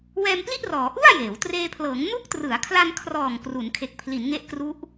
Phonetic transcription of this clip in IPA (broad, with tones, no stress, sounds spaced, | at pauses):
w ɛː˧ m p l i˥˩ ʔ r ɔː˩˦ ʔ u˥˩ a̯ j eː˩˦ w t r eː˧ pʰ l ɤː˩˦ ŋ n u˦˥ k̚ t r ɯ˩˦ a̯ kʰ l a˧ n kʰ r ɔː˨˩ ŋ k r u˩˦ n kʰ e˨˩ k̚ pʰ l i˩˦ n ŋ e˦˥ ʔ k r u˦˥ ʔ